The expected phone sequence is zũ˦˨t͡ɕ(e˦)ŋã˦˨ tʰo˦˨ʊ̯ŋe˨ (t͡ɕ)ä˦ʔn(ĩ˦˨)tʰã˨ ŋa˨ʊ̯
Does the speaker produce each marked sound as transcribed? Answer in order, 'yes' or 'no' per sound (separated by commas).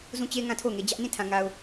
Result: yes, no, yes